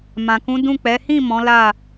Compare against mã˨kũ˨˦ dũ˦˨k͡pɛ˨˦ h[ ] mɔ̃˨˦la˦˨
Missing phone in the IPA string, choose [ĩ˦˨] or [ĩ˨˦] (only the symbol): ĩ˦˨